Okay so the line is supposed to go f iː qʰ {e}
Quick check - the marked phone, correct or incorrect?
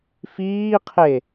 correct